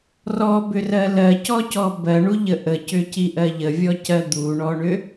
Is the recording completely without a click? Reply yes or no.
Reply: yes